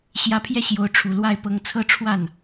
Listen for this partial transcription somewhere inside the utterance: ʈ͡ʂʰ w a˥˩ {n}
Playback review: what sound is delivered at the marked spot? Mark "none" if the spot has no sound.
n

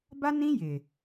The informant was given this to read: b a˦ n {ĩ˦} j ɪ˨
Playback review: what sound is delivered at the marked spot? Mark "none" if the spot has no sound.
ĩ˦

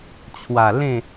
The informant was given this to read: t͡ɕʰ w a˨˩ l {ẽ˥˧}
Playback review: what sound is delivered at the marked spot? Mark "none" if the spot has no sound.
ẽ˥˧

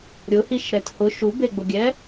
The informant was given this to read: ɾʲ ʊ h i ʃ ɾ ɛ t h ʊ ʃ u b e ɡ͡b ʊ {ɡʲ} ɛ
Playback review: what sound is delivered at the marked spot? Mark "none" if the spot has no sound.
ɡʲ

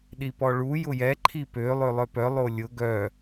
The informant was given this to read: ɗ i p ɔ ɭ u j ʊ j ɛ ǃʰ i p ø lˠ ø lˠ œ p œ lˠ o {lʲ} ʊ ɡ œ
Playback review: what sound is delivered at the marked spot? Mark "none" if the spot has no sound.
lʲ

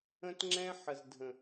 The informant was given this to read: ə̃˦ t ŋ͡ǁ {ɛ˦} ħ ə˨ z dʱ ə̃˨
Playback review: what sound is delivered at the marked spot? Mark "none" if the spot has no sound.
ɛ̃˦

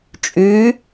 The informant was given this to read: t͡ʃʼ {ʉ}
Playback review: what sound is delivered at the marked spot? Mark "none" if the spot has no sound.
ʉ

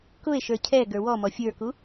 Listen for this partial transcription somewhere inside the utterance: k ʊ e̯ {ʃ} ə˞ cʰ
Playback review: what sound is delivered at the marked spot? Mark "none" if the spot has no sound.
ʃ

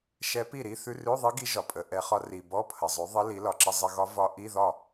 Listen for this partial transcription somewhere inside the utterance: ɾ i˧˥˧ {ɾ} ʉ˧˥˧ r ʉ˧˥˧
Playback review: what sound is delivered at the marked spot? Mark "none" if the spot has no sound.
θ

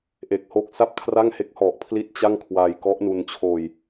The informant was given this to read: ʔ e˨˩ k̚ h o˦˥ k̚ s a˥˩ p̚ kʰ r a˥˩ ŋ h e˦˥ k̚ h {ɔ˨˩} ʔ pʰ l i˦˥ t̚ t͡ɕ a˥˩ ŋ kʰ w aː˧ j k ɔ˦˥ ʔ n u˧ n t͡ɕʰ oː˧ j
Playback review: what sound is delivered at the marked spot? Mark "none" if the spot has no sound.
ɔ˨˩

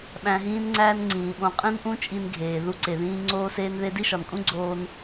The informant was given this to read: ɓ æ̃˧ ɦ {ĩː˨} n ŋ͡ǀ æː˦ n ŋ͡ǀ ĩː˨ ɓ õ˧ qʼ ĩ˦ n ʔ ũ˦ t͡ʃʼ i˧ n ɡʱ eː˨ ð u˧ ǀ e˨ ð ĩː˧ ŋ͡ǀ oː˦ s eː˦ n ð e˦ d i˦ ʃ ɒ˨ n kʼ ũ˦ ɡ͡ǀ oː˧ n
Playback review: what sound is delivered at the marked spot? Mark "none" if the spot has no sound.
ĩː˦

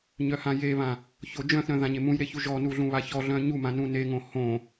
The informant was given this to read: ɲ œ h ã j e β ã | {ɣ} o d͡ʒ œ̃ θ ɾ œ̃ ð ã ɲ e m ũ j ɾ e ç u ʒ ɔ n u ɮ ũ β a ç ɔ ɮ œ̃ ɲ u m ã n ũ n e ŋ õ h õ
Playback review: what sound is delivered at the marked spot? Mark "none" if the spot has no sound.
ç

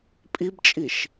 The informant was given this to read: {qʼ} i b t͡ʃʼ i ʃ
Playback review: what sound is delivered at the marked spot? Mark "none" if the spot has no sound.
pʼ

